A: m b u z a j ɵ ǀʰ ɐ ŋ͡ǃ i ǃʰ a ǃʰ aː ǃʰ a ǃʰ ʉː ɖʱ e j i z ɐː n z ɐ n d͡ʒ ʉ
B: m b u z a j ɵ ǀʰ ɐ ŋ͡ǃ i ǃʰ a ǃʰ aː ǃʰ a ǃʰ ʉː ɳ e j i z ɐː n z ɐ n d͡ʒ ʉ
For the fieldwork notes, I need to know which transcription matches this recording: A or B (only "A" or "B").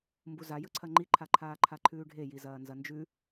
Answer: A